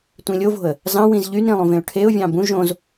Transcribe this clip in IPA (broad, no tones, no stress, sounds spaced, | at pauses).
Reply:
tʷ ĩ lʲ o v o̤ ə̯ | z ɑ̃ w ĩ z ʎ y n ɾ ĩ lˠ ũ v ẽ ʊ̯ ʈʰ e ʊ̯ vʲ ɑ̃ b ũ ʒ õ z